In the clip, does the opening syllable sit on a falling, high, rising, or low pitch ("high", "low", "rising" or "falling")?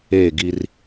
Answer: falling